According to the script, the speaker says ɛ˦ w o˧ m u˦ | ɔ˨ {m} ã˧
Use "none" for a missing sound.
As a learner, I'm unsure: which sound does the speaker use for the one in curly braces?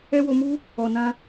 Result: n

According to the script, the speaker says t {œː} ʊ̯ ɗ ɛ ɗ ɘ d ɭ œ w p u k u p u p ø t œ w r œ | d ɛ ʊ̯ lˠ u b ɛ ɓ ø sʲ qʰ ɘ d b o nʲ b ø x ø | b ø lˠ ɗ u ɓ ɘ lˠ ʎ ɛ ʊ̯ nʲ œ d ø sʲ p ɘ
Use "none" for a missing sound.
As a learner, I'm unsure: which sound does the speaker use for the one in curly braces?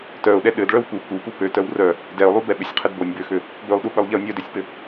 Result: œ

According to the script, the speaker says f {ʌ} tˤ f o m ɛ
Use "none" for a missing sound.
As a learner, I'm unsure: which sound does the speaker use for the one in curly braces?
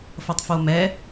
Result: ʌ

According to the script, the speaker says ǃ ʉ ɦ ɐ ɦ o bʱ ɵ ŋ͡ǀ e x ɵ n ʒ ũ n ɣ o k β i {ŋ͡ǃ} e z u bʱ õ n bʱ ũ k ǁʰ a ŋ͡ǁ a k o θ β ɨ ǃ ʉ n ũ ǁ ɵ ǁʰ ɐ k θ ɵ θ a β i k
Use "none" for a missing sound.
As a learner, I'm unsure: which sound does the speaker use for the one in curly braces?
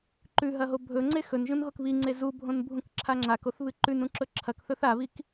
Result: ŋ͡ǀ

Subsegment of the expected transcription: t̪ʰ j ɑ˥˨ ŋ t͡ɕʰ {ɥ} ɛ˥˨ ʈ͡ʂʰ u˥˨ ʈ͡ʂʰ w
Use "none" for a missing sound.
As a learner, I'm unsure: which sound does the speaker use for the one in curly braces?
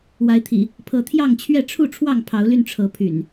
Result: ɥ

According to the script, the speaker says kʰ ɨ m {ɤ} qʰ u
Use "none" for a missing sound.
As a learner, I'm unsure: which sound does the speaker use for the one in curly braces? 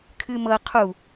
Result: ɤ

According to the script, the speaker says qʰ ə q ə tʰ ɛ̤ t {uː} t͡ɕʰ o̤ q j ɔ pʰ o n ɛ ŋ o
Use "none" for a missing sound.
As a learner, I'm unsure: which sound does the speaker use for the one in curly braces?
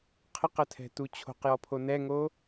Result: u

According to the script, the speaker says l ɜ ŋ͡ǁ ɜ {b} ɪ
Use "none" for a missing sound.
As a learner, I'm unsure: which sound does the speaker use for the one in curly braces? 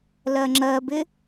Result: b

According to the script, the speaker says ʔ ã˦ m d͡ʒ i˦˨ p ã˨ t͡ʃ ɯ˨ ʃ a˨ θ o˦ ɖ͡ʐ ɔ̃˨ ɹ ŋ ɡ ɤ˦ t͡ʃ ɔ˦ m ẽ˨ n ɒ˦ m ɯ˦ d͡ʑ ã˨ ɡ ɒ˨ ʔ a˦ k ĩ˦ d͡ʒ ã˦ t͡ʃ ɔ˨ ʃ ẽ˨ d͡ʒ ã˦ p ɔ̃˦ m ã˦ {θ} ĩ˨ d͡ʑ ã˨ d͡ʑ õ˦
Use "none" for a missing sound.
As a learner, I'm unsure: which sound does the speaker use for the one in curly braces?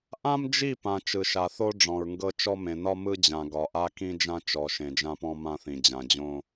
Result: θ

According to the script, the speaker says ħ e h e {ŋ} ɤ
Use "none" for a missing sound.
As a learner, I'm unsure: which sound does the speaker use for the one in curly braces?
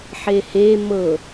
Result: m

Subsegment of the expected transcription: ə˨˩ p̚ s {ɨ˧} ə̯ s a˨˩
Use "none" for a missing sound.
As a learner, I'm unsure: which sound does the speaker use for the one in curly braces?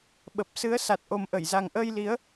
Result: ɨ˨˦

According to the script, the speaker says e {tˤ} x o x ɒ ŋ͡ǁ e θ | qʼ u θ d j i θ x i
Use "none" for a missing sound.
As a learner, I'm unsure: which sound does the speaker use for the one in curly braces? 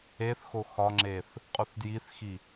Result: θ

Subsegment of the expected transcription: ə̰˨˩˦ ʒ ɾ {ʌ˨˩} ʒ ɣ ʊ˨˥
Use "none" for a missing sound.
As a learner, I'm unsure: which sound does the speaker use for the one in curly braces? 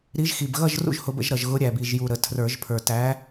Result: ʌ˨˩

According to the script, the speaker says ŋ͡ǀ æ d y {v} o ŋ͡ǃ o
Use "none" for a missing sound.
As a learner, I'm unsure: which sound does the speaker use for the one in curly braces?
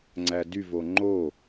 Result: v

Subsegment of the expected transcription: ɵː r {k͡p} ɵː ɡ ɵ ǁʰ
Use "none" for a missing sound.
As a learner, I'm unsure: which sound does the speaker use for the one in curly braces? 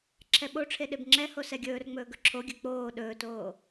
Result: ŋ͡m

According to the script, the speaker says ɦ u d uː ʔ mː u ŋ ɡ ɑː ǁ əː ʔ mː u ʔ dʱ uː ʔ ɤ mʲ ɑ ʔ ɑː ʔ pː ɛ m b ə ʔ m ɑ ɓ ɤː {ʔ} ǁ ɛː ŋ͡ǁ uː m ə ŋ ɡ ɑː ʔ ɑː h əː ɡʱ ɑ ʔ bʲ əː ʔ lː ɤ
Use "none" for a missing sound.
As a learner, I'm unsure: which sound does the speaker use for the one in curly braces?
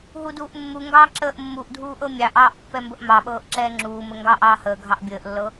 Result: ʔ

